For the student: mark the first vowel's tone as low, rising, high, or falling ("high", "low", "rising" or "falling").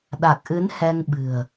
low